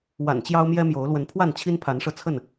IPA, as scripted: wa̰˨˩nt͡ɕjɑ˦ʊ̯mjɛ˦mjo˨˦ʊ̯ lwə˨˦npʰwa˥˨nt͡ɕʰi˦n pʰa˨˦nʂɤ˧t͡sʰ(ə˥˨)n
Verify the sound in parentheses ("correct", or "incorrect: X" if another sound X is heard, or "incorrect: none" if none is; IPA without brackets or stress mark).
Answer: correct